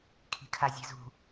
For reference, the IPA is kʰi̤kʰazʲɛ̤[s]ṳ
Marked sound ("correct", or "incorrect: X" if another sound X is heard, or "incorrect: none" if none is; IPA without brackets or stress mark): incorrect: z